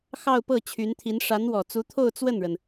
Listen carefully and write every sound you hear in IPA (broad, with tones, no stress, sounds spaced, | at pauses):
x ɑ˥˧ ʊ̯ p ɤ˥˩ t͡ɕʰ y˧˥ n t̪ʰ i˧˥ n ʂ a˧˥ n w ɔ˨˩ t͡s u˧˥ t̪ʰ o˥˧ ʊ̯ t͡s w ə˥˩ n ɻ ə˩ n